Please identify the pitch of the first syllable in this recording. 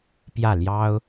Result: falling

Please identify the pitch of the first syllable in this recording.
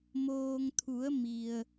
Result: low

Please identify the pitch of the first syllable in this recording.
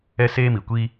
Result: high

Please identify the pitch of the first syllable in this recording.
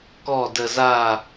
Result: falling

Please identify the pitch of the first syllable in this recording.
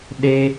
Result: high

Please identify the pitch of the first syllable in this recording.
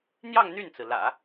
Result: falling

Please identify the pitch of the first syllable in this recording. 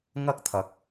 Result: high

